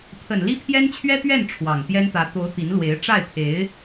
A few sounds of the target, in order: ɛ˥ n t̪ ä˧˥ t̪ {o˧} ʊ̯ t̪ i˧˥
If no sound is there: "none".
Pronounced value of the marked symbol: o˧˥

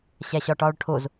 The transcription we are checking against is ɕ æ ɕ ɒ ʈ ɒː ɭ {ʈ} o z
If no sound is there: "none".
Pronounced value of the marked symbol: ʈʰ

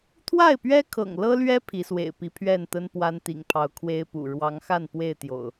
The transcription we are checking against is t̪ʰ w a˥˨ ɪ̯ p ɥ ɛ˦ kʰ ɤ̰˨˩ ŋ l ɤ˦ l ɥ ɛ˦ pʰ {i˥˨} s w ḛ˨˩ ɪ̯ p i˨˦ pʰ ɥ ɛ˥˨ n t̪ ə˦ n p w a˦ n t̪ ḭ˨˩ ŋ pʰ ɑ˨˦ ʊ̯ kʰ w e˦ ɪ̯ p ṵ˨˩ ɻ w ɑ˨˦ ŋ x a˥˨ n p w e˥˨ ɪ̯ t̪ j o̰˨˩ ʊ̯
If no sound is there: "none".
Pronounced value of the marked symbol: i˨˦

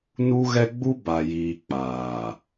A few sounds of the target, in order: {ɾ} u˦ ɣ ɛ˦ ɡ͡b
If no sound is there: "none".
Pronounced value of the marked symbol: n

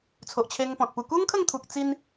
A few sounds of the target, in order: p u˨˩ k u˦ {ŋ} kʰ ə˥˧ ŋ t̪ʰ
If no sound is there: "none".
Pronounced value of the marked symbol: ŋ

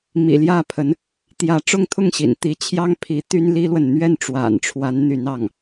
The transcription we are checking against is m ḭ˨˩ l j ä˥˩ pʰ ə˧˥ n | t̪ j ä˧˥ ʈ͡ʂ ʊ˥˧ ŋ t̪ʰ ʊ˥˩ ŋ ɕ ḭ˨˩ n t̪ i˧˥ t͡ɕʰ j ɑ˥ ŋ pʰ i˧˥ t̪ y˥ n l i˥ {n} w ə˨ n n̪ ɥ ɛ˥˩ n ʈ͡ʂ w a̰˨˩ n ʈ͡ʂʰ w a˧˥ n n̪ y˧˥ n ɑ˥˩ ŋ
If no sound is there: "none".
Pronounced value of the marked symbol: l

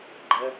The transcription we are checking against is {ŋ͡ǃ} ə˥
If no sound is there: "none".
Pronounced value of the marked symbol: ɡ͡ǃ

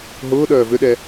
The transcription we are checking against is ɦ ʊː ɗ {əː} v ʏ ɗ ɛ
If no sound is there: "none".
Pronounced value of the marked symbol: œː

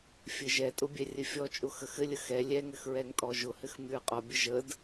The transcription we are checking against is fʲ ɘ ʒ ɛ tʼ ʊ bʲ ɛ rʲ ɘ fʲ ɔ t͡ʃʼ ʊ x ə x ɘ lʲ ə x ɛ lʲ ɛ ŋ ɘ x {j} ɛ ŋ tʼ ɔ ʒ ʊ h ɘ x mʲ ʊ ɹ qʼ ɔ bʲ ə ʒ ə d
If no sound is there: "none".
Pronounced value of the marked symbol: ɹ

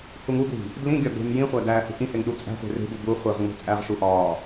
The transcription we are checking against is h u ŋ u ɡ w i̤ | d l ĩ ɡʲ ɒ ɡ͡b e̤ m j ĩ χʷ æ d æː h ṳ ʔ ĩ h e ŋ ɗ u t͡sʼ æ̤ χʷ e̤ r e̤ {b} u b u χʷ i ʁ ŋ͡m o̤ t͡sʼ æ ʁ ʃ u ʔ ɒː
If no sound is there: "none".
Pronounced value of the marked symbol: b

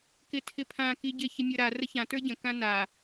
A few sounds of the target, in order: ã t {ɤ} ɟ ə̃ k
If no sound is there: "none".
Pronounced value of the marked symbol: ə˞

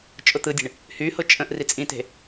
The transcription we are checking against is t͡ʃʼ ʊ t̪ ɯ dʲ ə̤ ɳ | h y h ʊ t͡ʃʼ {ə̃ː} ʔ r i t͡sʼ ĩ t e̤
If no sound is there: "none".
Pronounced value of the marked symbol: ə̃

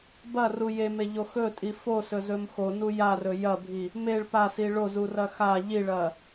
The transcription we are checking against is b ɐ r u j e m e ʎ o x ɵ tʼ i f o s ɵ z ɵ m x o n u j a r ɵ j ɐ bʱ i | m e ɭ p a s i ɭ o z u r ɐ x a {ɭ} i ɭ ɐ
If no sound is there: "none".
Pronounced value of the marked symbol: ʎ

